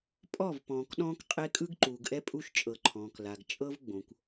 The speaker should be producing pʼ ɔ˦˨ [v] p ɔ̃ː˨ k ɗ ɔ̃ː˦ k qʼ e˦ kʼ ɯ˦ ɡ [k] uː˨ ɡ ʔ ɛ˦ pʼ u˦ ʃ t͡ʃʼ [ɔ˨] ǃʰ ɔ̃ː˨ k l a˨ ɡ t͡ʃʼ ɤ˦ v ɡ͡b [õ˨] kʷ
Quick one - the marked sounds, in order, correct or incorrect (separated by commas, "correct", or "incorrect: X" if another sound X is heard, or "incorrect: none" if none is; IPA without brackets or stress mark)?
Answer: correct, incorrect: ǃ, incorrect: ɤ˨, correct